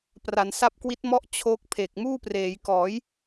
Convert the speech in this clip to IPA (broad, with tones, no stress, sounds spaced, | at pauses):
p r a˩˦ n s a˦˥ p̚ k w i˦˥ t̚ m ɔ˥˩ ʔ t͡ɕʰ o˦˥ k̚ pʰ e˨˩ k̚ m uː˥˩ p r eː˩˦ j k ɔː˩˦ j